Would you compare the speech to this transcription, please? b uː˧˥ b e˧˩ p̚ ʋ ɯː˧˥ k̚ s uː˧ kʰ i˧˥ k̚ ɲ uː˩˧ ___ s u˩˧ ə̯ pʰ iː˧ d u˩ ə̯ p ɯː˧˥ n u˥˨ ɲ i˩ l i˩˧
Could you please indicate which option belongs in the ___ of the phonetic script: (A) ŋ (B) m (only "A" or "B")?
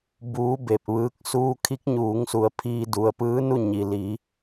A